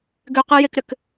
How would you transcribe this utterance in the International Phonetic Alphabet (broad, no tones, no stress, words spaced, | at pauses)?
ɡʏqɨjekɾʏk